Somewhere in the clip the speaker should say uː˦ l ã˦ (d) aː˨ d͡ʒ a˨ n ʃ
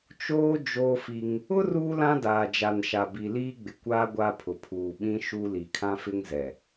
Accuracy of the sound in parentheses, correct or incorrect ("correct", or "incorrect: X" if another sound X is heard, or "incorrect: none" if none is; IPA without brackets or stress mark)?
correct